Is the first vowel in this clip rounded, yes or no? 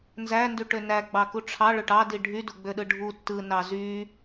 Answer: no